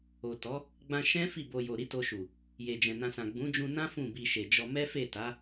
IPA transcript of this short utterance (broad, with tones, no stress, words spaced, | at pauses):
o˨tɔ˨˦ | ɡ͡bã˧ ʃɛ̃˦ fi˦˨bo˧jo˨ ɾi˨˦to˧ʃu˨ | je˨d͡ʒɛ̃˨nã˧sã˨ ɡ͡bũ˨˦d͡ʒũ˧nã˦ fũ˦˨bi˧ʃe˨d͡ʒɔ˧ mɛ˦fe˦˨ta˨˦